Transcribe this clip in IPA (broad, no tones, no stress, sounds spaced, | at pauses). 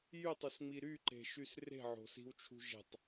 j y tˤ y s ŋ͡m i ɾ y ǃ e̤ ʃ y s r e̤ ʕ o̤ s i̤ w t͡ʃʰ ṳ ʒ e̤ tˤ